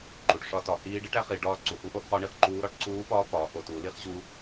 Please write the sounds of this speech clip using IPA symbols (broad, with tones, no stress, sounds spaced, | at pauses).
ǃ u˩˧ ʈ ʂ ɒ˦˥ t ɒ˩˧ h iː˦˥ ɖ i˦˥ ʈ æ˦˥ χ i˩˧ ɖ ɒː˦˥ ǀ u˩˧ h u˦˥ ʔ o˦˥ ʔ χ ɒ˦˥ ɳ i˩˧ χ ǃ uː˦˥ ɾ ɒ˦˥ ʈ ǀ uː˦˥ p ɒː˦˥ p ɒː˩˧ ʔ o˩˧ t u˩˧ l i˦˥ χ ʑ u˦˥